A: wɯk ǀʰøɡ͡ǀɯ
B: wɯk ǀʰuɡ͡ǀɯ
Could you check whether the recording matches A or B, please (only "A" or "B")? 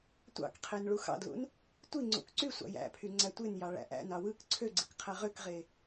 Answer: A